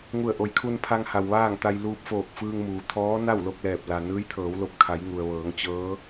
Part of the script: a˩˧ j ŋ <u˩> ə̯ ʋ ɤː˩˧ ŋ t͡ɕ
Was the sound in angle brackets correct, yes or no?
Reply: yes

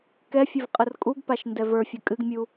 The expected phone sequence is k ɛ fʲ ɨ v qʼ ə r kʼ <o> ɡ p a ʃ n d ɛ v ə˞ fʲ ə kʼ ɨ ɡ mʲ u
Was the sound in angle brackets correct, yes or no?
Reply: no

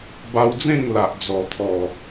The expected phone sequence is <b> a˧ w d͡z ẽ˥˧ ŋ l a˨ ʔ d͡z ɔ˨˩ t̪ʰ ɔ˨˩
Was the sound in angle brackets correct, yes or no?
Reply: yes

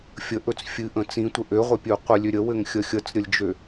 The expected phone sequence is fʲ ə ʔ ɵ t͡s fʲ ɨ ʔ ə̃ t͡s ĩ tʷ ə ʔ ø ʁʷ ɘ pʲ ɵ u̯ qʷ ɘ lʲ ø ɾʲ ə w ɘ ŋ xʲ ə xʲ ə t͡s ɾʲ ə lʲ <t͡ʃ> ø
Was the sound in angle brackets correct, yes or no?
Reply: no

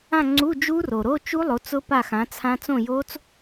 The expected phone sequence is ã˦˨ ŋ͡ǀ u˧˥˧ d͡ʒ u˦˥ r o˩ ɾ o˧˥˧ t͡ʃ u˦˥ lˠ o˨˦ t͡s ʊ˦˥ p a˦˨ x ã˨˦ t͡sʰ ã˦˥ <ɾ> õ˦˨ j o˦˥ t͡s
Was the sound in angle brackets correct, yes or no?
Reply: no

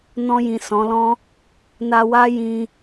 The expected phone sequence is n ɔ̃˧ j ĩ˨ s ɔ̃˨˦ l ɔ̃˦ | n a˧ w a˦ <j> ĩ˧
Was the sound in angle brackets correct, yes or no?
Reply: yes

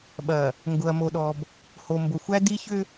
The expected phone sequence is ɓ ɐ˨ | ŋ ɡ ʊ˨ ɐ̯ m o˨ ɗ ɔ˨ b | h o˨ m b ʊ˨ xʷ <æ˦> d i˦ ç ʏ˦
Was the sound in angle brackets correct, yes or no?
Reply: yes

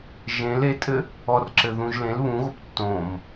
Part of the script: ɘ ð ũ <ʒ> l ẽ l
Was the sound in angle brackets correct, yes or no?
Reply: yes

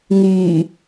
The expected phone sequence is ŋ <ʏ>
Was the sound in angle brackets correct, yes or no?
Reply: no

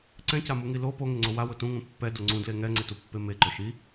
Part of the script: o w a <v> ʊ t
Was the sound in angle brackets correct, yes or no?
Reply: no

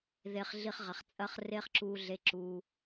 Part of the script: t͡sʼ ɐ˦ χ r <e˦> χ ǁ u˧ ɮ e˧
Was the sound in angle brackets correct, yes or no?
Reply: yes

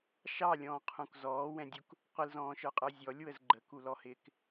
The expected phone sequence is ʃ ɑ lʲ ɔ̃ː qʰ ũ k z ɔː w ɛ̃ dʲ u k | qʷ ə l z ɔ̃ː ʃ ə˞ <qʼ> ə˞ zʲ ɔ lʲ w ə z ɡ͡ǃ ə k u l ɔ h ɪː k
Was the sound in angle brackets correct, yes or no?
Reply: yes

